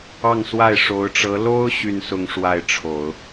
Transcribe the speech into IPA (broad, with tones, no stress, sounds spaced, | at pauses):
ɑ˥˧ ŋ s w a˥˩ ɪ̯ ʂ o˧˥ ʊ̯ ʈ͡ʂ ɤ˧˥ l o˥ ʊ̯ ɕ y˥˧ n s ʊ˥˧ ŋ ʂ w a˥˩ ɪ̯ ʈ͡ʂʰ o˨˩˦ ʊ̯